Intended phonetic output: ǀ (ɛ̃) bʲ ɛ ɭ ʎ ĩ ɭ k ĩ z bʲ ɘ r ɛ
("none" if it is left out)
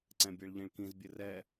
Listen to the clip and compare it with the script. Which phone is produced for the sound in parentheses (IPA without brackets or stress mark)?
ɛ̃